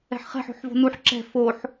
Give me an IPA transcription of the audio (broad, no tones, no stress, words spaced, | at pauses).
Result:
ɛ̤ħχɛ̤ħ o̤ħvo̤nuħ ǁɛ̤ foħ